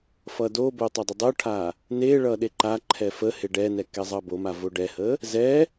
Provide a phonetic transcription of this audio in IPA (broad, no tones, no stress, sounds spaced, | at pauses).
f ʌ d o b o tˤ ʌ dˤ ə dˤ o ʈʰ a | n e ɭ ʌ ɗ e ǃ a ǃʰ ɛ f ə h e ɖ ɛ n ɛ k ɛ zˤ ʌ b o m a v o ɖ ɛ h ə | z ɛ